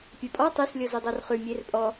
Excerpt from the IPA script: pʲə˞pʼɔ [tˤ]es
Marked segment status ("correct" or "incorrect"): correct